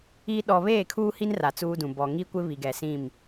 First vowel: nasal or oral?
oral